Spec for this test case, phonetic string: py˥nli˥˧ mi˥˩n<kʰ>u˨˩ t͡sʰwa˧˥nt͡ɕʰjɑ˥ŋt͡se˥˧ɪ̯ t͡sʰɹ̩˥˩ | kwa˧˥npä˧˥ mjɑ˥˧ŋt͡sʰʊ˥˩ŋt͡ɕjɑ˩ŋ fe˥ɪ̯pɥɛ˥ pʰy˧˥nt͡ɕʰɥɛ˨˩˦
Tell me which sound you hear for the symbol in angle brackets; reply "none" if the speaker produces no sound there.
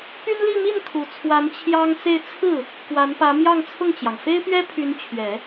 kʰ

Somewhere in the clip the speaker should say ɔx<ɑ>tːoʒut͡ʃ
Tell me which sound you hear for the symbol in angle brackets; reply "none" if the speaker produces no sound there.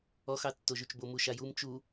ɑ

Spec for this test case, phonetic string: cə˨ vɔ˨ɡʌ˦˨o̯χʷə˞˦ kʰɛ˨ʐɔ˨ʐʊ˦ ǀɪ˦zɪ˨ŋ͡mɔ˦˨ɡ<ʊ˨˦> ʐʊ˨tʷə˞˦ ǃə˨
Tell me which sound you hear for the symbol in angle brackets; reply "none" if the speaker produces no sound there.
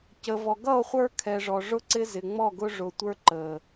ʊ˦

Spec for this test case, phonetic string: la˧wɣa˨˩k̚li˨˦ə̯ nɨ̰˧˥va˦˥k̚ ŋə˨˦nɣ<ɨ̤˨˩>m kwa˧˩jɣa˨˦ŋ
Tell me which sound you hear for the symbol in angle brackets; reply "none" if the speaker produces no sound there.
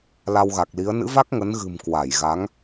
ɨ̤˨˩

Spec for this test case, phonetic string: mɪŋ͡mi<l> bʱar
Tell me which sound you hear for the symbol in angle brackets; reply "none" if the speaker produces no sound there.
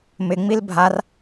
l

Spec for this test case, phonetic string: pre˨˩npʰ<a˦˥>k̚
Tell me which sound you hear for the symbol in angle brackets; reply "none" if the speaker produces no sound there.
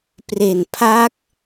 a˦˥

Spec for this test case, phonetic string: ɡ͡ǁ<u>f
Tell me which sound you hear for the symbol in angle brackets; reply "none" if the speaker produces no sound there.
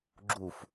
u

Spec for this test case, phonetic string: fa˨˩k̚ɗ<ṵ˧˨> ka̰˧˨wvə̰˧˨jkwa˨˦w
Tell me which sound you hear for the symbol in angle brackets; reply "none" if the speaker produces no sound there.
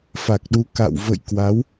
u˨˦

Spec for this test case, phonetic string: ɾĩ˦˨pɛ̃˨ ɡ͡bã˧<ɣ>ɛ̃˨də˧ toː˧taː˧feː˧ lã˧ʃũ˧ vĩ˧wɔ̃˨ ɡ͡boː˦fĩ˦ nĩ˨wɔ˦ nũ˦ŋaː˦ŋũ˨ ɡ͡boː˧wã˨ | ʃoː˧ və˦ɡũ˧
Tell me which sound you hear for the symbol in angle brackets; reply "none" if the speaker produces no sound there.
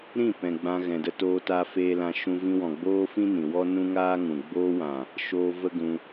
ɣ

